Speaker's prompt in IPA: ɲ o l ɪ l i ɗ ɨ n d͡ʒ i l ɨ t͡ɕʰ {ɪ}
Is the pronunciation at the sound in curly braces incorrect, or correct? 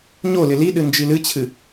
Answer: incorrect